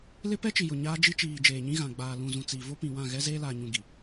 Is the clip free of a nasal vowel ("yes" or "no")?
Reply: no